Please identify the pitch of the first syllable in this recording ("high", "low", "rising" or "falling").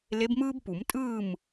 rising